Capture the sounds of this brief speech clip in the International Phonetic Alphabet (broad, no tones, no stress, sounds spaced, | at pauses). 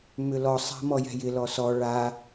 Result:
m ʏ l ɔ sˤ a̤ m ɔ j ɛ̤ j ɪ l ɔ s ɔ ɭ a